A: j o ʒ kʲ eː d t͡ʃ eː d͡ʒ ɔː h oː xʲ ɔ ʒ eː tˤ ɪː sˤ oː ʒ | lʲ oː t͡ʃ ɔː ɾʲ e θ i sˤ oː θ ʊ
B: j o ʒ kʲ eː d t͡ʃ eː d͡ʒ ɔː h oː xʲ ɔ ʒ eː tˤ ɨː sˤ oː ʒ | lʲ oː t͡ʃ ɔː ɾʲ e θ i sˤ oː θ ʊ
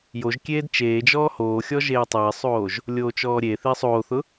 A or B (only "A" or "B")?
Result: A